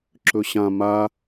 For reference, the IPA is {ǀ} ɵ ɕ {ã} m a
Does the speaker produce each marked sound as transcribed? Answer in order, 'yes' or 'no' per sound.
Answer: no, yes

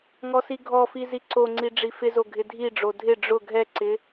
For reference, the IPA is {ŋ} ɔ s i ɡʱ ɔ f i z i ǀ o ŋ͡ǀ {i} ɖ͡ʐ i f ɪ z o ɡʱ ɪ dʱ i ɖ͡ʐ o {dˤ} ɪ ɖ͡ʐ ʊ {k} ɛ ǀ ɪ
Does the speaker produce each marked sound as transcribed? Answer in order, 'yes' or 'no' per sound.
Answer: yes, yes, no, no

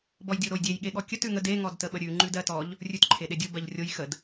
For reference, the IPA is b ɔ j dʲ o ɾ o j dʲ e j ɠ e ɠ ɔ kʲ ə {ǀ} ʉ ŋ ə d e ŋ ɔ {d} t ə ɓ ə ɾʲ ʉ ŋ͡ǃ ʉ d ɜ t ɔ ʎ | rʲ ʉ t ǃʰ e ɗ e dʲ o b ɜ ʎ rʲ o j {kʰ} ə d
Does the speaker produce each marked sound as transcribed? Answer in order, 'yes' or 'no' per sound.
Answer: no, yes, no

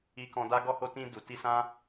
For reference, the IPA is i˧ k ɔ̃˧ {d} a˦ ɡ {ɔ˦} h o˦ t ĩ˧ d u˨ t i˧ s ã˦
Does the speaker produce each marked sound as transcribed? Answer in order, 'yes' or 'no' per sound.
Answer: yes, yes

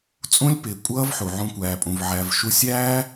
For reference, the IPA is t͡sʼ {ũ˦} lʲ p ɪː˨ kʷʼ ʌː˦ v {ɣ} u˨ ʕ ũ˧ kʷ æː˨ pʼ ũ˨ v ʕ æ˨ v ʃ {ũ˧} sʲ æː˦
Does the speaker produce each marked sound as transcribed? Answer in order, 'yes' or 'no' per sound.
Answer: yes, no, no

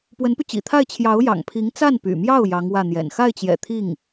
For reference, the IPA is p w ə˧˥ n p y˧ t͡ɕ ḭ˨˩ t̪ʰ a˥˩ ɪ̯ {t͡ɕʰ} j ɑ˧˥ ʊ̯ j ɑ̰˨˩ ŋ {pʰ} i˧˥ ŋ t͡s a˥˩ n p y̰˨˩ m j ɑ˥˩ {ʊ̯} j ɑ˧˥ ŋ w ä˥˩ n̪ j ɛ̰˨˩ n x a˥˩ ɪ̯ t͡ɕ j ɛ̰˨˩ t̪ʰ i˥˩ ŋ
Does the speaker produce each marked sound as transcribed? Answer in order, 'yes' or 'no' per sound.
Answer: yes, yes, yes

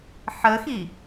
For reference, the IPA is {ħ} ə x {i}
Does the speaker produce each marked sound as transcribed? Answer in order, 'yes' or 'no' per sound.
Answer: yes, yes

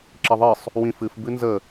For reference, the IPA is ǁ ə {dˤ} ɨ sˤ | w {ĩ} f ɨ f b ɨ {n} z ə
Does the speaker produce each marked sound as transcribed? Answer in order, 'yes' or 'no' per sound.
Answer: no, yes, yes

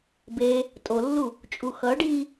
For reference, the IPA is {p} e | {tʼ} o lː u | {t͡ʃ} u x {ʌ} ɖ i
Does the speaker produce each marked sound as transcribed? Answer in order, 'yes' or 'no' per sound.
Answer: no, yes, no, yes

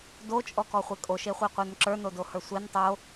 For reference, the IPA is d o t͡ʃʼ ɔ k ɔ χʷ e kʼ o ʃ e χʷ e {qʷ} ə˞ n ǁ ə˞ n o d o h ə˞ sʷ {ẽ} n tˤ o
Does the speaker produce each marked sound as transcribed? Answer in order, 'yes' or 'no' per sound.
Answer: yes, no

